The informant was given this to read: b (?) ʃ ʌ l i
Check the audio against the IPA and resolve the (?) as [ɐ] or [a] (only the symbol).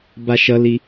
a